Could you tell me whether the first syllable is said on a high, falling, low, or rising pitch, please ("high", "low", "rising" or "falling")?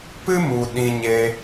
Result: high